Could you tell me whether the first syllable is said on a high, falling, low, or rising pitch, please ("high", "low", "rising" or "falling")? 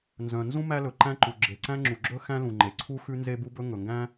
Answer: low